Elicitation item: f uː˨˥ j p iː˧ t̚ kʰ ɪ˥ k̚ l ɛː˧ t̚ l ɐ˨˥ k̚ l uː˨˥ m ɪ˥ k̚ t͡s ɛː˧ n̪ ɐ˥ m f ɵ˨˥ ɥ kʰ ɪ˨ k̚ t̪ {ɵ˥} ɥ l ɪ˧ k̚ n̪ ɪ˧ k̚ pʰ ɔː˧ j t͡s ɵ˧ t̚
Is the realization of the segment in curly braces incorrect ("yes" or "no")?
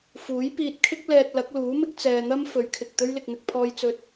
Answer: no